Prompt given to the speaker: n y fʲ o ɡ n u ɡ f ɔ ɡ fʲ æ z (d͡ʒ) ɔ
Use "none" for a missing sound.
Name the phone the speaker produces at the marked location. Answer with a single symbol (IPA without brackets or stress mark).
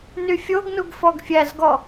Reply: ɡ